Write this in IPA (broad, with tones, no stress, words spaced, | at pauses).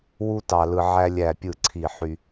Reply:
wu˦ tɑ˨lɯ˨ ʕæ˦lʲæ˦˨pʲɯ˦˨ǀʰi˦˨ ħy˦